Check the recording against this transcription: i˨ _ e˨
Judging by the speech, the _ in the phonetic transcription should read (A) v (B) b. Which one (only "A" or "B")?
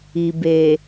B